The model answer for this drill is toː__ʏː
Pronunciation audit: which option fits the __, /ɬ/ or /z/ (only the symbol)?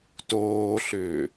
ɬ